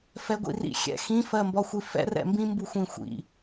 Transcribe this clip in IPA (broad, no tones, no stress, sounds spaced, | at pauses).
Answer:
f ɛ ɡʷ ḭ r ḭ xʲ ɛ̰ x ĩ f ɜ m b ɒ xʷ i f ɛ̰ r ɛ̰ m b ĩ m b u xʷ ĩ xʷ ḭ